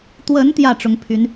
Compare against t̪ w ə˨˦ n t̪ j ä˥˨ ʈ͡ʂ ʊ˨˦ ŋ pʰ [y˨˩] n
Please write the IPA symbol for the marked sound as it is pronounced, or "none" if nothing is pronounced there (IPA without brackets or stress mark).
y˨˦